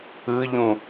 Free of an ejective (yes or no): yes